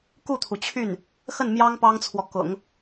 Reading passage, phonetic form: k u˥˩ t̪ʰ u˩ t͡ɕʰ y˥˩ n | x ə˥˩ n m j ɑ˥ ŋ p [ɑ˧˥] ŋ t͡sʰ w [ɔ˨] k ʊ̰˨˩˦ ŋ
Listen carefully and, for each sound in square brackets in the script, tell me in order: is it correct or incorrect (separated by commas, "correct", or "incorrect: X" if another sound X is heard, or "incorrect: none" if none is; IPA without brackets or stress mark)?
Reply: incorrect: ɑ˥, correct